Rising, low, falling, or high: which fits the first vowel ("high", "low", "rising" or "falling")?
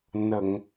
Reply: low